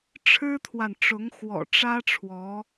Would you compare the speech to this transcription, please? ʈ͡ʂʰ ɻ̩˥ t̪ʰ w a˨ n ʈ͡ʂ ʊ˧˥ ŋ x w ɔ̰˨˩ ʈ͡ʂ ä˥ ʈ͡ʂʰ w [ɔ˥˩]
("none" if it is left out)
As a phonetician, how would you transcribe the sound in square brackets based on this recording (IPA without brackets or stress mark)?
ɔ˧˥